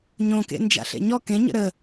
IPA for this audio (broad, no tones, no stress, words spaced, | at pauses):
ɲõkḛ nd͡ʒa̰ɬḛɲɔ kẽɲə̰ ɾə